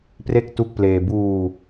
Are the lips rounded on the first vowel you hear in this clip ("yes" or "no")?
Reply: no